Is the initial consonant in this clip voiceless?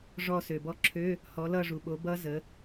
no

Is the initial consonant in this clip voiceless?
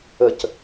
yes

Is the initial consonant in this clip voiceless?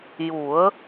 no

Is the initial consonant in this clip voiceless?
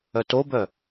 yes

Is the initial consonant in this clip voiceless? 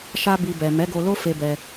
yes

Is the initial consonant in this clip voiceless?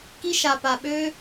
yes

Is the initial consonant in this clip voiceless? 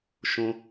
yes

